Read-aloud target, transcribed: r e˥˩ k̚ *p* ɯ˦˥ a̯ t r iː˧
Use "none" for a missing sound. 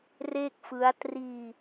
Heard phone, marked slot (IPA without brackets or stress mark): f